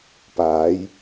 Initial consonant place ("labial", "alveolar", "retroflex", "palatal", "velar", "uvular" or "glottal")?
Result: labial